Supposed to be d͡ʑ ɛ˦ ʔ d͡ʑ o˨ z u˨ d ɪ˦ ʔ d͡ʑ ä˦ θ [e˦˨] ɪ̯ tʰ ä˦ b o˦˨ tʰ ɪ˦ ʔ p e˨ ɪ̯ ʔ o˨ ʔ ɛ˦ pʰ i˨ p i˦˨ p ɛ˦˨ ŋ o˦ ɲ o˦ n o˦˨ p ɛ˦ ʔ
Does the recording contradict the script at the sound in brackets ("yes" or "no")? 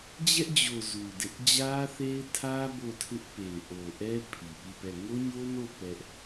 yes